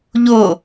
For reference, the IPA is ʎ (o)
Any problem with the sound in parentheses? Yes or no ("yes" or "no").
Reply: no